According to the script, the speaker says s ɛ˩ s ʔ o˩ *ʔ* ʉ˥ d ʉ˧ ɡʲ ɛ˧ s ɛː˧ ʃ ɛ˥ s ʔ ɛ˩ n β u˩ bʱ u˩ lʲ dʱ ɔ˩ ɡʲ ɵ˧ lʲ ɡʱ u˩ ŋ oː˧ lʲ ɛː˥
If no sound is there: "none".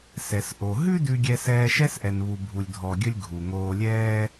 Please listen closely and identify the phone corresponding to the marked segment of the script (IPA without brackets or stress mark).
ɦ